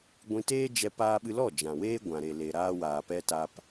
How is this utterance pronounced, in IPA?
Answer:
ɡʷ ĩ˧ t eː˦ d͡ʒ ɛ˧ p aː˧ ɓ ɨ˧ l ɔ˦˨ d͡ʒ ã˨ w eː˦ ɡʷ ã˨ ɾ e˨ l e˨ ɾ aː˧ w aː˨ p ɛ˧ t aː˧ p

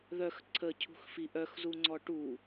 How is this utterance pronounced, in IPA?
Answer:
ð œ x ǀʰ ə cʰ ṳ x f i ʔ œ x z u ŋ͡ǀ ɔ ʈ u

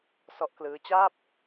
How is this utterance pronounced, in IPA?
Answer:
s ɔ˦˥ ʔ k l ɯː˦˥ t͡ɕ aː˥˩ p̚

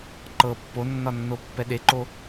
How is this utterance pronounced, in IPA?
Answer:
ǃ ɤ pː o nː ɒ nː o pː ɛ ɗ e ǃ o

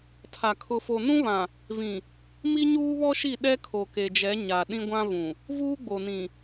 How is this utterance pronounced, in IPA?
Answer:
tʰ a˨ kʰ ʊ˨ f o˨ n ũ˦ β ã˨ | v ĩ˨ | m i˦ ɲ uː˦ β ɔ˦ ʃ i˦˨ ɗ ɛ˦ kʰ o˨ k e˨ d͡ʒ ɛ˨˦ ɲ a˨ ɗ ĩ˦ ɡʷ ã˦ v ũ˨ | v uː˦ ɡ͡b o˨ n ĩ˨

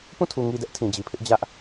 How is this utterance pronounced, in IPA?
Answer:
p ũ˦˨ tʰ u˨ ŋ i˨ d ɛ˦ ʔ tʰ ĩ˨ d͡ʑ i˨ pʰ ɪ˦ ʔ d͡ʑ ä˦ ʔ

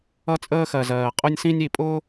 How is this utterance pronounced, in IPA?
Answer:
ʌ˦ t͡sʼ əː˦ x ɜ˨ z ɜː˨ qʼ ʊ˦ nʲ s ĩ˦ nʲ i˨ pʼ ʊː˦

